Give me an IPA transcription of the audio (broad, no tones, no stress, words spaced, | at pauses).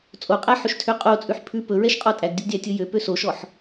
t͡sʼoqʼæħɵʃtʰø qʼot͡sʼʉħ pʰʉ pɵɹɛʃqʼɔ tʼæɡdʲɵɡdʲætʲɵ jøpø soʃɔħ